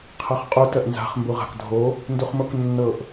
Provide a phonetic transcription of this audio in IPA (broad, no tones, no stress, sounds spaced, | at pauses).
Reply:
qʰ ɤ χ qʼ u t ɜ ʔ n z a̤ χ m b u ʁ a̤ k dʱ o | n d u χ m o k nː ɤ ʔ